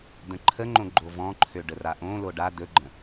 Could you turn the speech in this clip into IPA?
d̪ ə̃ ǃʰ ə ŋ͡ǃ õ ɡ͡ǃ o v ɔ̃ ǃʰ ø ɖ ə r a ʔ õ l o ɖ a d̪ ɵ ɡ͡ǃ ə̃

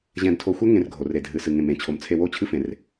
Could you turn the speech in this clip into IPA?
ʑ ɛ̃˧ d tʰ o˧ xʷ ɛ˦ ŋ ẽ˧ r ɡʱ o˨ r e˨ dʱ ɨ˨ s ɨ˨ ŋ ẽ˨ m ẽ˨ t͡ɕʰ o˨ m t͡sʰ e˧ w o˦˨ t͡ɕʰ ɨ˦ f ẽ˨ r

